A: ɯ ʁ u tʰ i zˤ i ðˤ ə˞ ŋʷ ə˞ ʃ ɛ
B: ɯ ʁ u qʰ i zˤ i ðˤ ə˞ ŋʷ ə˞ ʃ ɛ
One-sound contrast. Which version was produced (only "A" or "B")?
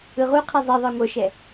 B